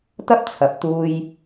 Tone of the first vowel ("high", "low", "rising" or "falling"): high